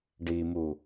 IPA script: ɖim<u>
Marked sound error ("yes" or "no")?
no